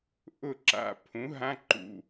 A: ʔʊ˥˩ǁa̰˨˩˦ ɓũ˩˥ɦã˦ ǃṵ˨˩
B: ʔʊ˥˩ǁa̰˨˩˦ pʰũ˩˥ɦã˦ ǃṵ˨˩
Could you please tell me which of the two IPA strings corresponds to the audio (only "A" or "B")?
B